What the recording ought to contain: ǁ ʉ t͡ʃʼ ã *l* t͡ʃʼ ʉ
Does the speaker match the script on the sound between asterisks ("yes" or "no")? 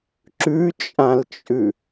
yes